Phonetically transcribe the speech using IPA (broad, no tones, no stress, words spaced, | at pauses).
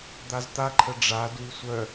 d̪azt̪aǃʰə ɖ͡ʐa dui̯sʷœ